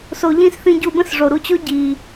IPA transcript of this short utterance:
s o˧ ʎ ĩ˦ s θ ĩ˧ ɟ u˧ b ə̃˦ s ʐ o˨ ɾ u˧ t͡ɕ o˦ ɟ i˨

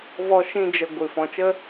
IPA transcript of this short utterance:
v ɔ˧ ʃ ĩ˧ d͡ʒ ə˨ ɡʷ ɨ˨ f ɔ̃˨ t͡ʃ ə˦

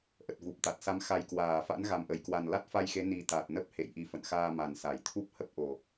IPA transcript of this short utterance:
ʔ ə˨˩ t̚ v u˨˩ p̚ t̪ a˨˩ t̚ s a˨˦ m x a˨˩ j k w aː˧˩ f a̰˧˥ n ɣ a˨˩ m ʔ ə˧˩ j k w a˨˩ n l a˦˥ t̚ f a˧ j x e˨˦ n i˨˩ t̪ a˨˩ t̚ n ə˦˥ p̚ h ḛ˧˨ j ʔ i˨˩ f ə̰˧˨ n x aː˧ m a˨˩ n s a˧˩ j t̪ʰ u˦˥ p̚ h ə˦˥ p̚ ʔ o˨˩

